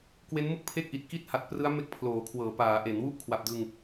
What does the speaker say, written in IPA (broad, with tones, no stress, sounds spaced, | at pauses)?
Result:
k w e˦˥ n m ɯ˥˩ k̚ pʰ e˥˩ k̚ ʔ i˨˩ t̚ k i˥˩ t̚ h a˨˩ t̚ p r ɯ˦˥ a̯ m e˦˥ k̚ pʰ l oː˩˦ kʰ w ɤː˩˦ p aː˩˦ ʔ e˩˦ n w u˥˩ ʔ kʰ w a˨˩ p̚ d ɯ˧ ŋ